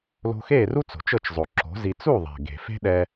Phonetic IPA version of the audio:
l o̤˧ x eː˥˩ r u˥ t͡s o̤˩ t͡ʃ ɤ˥˩ t͡ʃ zˤ o˩ ǁ o̤˩˥ z i˧ t͡s u˥˩ ðˤ e̤˩ ɡ e̤˩ f e̤˥ ɗ ɛ˧

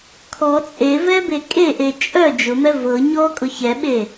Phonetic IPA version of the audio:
kʰ ɔ t͡sʼ e v ɛ b e kʼ e ʔ e t͡ʃʼ œ d͡ʒ ʊ m ɛ v ɤ ɲ ɔ kʼ ʊ ç ɛ ɓ e

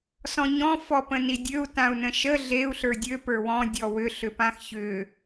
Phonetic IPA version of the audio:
s ɔ̃ ɲ ɔ̃ f ɔ p ə̃ n i dʲ ø u̯ t ã u̯ n ə̃ ʃ ə ɮ e u̯ ɬ ə˞ dʲ ø p ə˞ w ɔ̃ dʲ ɔ w ʏ ɬ ʏ p ã x ç ʏ

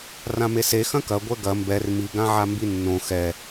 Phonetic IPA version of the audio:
r ã m e s e x ɐ̃ k ɐ ɡʷ ɛ ɡ ɐ m b ɛ r m i ɡ ã ʕ a m b i nː õ x ɛ

